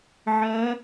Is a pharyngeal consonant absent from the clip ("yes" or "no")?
no